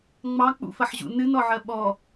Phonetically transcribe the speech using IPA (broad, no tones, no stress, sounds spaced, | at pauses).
ŋ͡m ɑ k͡p ṵ f ɐ ħ ʑ ṵ n ɨ n ɔ ʕ ɜ ɓ ɔ